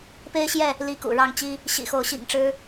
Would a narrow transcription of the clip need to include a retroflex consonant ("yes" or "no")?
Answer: yes